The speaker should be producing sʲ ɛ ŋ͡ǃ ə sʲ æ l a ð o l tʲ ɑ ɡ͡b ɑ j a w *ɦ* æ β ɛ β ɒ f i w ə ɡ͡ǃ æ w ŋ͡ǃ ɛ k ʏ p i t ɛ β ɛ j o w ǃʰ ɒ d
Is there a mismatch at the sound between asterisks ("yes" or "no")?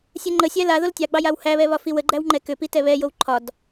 yes